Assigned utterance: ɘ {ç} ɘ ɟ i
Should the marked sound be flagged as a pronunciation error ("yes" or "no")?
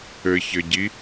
no